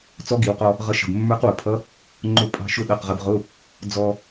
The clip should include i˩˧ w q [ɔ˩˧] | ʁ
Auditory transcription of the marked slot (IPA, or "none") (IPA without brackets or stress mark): ɔ˧